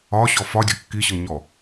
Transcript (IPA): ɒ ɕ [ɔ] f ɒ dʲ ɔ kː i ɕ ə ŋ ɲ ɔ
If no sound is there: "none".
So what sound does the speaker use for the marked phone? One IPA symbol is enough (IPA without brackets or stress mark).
ɔ